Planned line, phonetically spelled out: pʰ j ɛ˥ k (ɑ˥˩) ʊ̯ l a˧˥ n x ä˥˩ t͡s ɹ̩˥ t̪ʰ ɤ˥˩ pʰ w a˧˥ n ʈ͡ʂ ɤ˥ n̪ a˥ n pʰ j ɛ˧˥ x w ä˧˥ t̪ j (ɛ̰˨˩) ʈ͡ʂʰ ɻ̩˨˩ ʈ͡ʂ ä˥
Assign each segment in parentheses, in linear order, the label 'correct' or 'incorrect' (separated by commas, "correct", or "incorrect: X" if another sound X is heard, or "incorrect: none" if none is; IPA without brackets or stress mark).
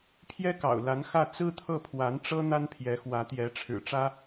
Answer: incorrect: ɑ̰˨˩, incorrect: ɛ˧˥